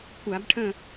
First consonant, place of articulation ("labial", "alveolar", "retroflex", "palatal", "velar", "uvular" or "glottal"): velar